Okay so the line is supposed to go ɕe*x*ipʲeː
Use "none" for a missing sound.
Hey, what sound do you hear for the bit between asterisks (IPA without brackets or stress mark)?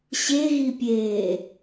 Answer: ɣ